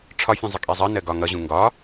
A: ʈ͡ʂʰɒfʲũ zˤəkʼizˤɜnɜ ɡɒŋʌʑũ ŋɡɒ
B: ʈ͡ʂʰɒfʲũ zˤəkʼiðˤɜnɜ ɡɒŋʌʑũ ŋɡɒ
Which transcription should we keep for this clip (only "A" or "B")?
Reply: A